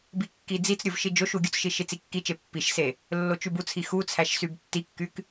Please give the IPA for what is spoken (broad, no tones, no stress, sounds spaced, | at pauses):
b i kː i d͡z i t͡s ɾʲ o v ʃ i d͡ʒ o ʃ u ɡʲ u t͡s ʃ i ʃ i t͡s i kː i t͡ʃ e pː i ʃ s e | lː o t͡ʃ y b u t͡sʰ i x u t͡sʰ æ ʃ s y b tː i kː y k